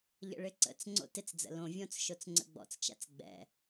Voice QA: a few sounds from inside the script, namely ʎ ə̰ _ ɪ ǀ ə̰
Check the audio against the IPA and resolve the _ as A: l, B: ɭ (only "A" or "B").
B